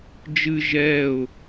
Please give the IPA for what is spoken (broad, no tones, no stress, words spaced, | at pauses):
d͡ʒɨ ʒɛʊ̯